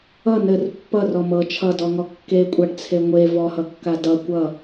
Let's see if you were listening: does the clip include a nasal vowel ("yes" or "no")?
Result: no